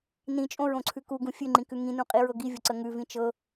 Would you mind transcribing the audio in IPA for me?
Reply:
n ĩ t͡ʃʼ õ ɹ õ ǀʰ ʉ k u ɡ ũ fʲ ʉ ŋ͡ǃ ĩ k ʉ ŋ ĩ n ũ qʼ i ɹ ɤ ɡ i vʲ ʊ ǀ ə ŋ ʉ v ĩ t͡ʃ ɤ

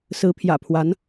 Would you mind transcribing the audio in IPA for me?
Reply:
s ɹ̩˧˥ pʰ j ä̰˨˩ pʰ w a˧˥ n

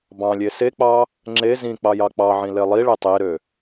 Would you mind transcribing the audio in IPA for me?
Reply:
b ɑ̃ lʲ e s e k͡p ɑ | ŋ͡ǁ e z ĩ k͡p ɑ j ɑ k͡p ɑ ʕ ĩ l e lˠ i ɭ e tˤ e ɾ ø

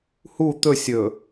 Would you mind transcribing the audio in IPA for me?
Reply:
h u t̪ ɵ sʲ ɵ

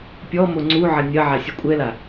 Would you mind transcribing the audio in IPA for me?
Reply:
pʲ ɔ m o ŋ͡ǀ u ʕ ɐ nʲ ɐ ʕ a sʲ u kʷʼ ɛ l a

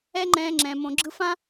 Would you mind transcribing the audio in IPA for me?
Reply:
ɛ˦ ŋ͡ǃ ɛ̃ː˧ ŋ͡ǁ ɛ̃ː˨ m õ˨ ɡ͡ǁ ɯ˧ f ã˦

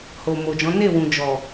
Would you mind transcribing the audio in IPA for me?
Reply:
h o˨ m o˨ d͡ʒ ɔ̃˨˦ n e˦˨ w ũ˨ d͡ʒ ɔ˨

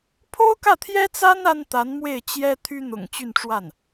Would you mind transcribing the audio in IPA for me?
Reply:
pʰ o˥ ʊ̯ k ä˥˩ t̪ʰ j ɛ˥ t͡s a˥ n a˥ n t̪ a˧˥ n m w e˥˩ ɪ̯ t͡ɕ j ɛ˥ t̪ʰ y˥ n̪ ʊ̰˨˩ ŋ t͡ɕ y˥˧ n ʈ͡ʂ w a˥˩ n

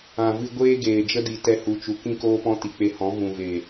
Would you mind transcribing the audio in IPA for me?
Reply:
ã˨ v ɨ˧ ɡʷ eː˦ ɡ eː˨ d͡ʒ ə˦ d i˨ t ɛ˧ h u˨ t͡ʃ u˨ k ĩ˦ k oː˦ p ɔ̃˦ t i˨ k͡p e˧ h ɔ̃˨˦ v ũ˨ v e˨

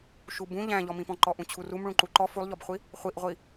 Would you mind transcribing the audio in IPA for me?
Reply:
ʃ u b ũ ʎ æ̃ ʎ ɔ m ĩ p ɔ̃ ǃ ɔ ʔ ũ t͡ɕʰ u r u m ɭ ũ ǃ u ǃ ɔ f u lˠ ʎ ɔ b χʷ i | χʷ i ʔ ʁʷ i

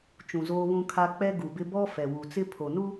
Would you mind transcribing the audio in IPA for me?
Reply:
t͡ʃ ũ˨ z oː˦ β ũ˦ kʰ a˦ k͡p ɛ˦ ɡ u˨ b ɪ˦ b ɔ˦ f ɛ˨ w u˨ t͡s ɪ˦ pʰ o˨ n u˦

